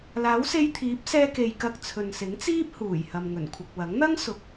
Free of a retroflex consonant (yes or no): yes